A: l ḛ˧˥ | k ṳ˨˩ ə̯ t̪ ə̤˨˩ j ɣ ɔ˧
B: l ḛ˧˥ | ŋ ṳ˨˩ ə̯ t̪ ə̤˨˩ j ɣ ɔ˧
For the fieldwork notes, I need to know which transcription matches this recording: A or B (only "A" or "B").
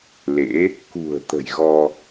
A